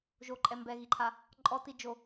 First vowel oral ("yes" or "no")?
yes